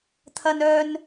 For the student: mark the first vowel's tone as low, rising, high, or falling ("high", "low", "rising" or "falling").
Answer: high